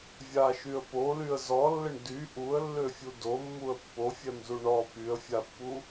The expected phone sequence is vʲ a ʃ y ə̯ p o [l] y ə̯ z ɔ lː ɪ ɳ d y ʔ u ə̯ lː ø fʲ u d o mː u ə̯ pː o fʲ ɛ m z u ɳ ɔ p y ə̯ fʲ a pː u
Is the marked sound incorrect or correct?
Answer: correct